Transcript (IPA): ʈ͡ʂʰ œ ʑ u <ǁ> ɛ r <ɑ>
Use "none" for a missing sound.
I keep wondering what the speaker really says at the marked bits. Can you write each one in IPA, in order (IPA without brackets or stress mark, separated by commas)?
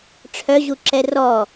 ǁ, ɔ